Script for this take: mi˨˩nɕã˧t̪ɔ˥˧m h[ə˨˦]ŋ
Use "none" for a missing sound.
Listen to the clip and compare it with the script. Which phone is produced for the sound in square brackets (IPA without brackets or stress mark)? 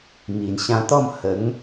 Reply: ə˨˦